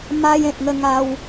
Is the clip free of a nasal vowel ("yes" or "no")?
no